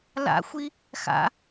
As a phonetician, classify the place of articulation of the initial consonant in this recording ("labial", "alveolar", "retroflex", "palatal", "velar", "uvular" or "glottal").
alveolar